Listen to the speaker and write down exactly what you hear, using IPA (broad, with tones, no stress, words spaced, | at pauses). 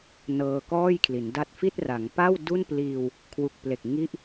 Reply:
nɤː˧kɔː˥˩j kʰli˩˦nda˥˩t̚ fi˥˩t̚ra˩˦ŋ pa˥˩w du˥˩npliː˧w | kʰwu˨˩k̚ple˨˩k̚ ŋi˦˥ʔ